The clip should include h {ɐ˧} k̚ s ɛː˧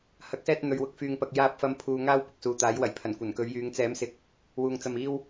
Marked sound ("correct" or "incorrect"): incorrect